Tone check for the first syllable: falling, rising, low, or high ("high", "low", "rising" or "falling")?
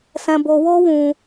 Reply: high